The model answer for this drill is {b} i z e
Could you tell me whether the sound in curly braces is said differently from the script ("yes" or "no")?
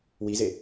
yes